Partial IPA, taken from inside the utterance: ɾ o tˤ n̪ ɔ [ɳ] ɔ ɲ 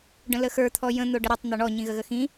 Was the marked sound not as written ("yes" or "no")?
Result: no